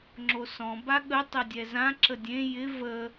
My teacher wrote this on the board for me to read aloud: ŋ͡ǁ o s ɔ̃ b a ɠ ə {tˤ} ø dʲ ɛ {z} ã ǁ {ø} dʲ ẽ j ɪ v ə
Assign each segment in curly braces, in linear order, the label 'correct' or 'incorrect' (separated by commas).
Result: correct, correct, incorrect